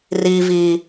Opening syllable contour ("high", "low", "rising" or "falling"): low